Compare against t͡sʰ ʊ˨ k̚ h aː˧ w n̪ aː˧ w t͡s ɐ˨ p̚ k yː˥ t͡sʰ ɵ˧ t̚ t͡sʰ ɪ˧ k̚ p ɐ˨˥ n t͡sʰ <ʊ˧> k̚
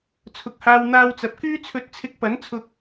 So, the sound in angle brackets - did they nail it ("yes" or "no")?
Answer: yes